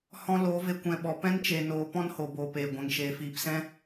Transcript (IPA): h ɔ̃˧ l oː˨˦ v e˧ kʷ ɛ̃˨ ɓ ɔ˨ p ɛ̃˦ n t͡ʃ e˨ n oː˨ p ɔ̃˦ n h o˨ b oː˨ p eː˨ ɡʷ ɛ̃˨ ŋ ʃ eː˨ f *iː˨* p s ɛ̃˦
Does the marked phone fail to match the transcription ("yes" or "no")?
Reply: no